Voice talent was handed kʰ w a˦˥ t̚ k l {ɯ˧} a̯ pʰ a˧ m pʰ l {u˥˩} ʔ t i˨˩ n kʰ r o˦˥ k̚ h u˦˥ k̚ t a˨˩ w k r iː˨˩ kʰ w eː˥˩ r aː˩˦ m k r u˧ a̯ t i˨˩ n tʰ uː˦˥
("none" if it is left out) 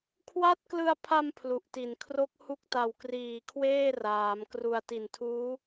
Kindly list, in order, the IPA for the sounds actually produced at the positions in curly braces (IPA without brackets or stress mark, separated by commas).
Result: ɯ˧, u˨˩